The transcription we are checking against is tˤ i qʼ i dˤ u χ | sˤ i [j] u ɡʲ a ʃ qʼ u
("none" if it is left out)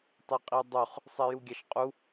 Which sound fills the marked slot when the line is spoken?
j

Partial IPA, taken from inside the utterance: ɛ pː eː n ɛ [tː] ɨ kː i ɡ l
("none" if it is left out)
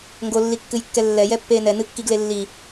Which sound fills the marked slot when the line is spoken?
n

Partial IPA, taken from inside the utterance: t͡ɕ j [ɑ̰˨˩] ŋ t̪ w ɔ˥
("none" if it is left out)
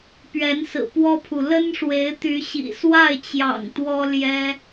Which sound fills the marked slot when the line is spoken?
ɑ̰˨˩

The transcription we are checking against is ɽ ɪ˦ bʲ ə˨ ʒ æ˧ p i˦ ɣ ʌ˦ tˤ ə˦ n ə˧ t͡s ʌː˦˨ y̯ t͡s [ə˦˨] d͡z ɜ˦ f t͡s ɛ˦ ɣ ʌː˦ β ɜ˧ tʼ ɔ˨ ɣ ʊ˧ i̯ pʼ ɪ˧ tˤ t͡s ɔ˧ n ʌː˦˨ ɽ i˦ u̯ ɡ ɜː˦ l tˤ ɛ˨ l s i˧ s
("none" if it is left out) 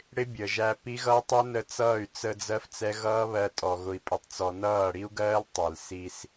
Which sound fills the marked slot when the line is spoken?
ə˧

